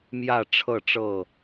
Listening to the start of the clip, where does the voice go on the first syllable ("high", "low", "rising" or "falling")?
falling